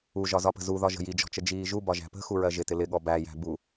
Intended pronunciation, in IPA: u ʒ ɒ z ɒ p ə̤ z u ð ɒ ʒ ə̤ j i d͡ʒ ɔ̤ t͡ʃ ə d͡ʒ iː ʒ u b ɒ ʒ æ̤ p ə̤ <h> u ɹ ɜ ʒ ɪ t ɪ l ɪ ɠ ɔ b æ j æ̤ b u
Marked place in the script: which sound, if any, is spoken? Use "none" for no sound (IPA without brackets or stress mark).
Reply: x